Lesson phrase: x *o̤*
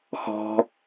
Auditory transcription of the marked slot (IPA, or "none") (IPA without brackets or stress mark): ɔ̤